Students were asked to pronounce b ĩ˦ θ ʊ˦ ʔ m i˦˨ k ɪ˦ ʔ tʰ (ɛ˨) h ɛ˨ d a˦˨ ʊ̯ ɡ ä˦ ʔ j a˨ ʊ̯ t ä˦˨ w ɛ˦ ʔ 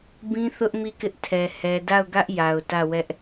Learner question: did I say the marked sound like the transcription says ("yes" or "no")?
yes